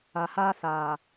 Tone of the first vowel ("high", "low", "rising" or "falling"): low